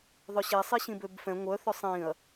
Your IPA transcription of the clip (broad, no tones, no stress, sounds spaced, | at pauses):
ðˤ œ ɕ ɛ sˤ i ɕ ĩ b ø b f ɛ̃ ŋʷ œ θ œ sˤ ĩ ɐ̯